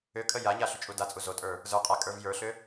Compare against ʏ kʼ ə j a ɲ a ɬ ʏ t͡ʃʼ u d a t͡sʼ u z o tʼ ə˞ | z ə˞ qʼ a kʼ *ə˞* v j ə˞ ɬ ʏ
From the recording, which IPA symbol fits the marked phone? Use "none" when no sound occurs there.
ə˞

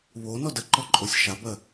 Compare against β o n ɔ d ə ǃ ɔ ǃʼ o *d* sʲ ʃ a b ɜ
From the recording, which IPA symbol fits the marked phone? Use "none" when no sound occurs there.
none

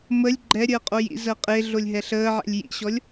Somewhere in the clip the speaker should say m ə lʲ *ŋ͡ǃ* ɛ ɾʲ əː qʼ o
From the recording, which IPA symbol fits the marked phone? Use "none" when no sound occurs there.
ɡ͡ǃ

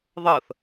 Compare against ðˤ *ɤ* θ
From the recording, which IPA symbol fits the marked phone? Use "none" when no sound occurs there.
ɤ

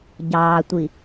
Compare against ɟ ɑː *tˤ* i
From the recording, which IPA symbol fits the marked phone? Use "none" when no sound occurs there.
tʷ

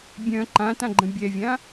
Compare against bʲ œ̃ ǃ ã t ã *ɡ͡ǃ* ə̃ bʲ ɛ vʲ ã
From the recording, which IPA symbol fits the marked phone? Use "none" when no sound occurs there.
ɡ͡ǃ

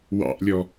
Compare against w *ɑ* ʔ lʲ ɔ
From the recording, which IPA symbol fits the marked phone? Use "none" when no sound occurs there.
ɑ̰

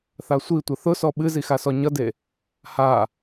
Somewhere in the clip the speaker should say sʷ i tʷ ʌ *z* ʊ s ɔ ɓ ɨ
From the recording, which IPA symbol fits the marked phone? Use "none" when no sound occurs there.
θ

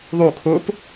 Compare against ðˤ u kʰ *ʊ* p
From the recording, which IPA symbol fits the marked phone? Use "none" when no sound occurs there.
ʊ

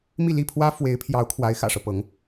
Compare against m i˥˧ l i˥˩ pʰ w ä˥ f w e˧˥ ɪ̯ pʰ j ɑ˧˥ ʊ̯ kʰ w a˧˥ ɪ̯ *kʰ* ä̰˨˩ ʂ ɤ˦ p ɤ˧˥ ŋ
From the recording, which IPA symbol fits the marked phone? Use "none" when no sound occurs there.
x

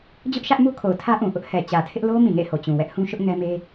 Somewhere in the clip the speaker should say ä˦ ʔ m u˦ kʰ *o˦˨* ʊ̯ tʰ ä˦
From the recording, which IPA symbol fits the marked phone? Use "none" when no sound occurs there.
o˨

